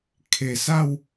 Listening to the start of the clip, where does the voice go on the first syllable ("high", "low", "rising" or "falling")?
low